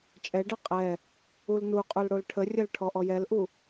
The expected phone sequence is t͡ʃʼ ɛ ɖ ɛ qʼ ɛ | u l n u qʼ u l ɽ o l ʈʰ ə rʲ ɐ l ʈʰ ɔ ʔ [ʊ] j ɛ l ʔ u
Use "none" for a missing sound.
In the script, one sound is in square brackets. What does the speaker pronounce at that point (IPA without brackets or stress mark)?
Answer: ɔ